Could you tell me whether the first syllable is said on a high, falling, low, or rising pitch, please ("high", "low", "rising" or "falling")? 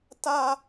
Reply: high